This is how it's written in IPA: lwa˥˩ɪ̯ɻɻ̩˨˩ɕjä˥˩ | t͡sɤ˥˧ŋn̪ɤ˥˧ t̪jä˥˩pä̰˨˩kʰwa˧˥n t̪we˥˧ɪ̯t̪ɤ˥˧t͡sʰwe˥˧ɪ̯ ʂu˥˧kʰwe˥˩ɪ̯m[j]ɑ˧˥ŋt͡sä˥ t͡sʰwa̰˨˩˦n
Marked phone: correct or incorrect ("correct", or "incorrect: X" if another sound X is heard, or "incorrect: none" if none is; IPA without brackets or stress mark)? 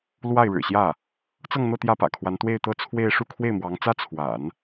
incorrect: w